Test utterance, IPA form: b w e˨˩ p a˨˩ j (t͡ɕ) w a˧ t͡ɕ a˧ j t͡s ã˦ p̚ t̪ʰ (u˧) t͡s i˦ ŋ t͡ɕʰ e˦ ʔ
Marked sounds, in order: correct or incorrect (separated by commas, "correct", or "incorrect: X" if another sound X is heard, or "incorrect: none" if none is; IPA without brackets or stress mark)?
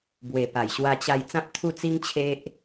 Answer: incorrect: ɕ, incorrect: u˥˧